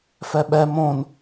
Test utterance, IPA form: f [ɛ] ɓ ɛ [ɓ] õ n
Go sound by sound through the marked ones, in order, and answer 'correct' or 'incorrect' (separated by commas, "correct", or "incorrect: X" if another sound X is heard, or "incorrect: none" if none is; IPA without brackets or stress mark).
correct, incorrect: m